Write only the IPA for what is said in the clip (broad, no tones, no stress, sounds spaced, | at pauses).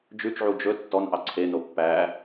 d͡ʒ ʉ t͡ʃ ʕ u d͡ʒ ɵ tː ɔ n ʔ ɑ ǀʰ e n o pː æ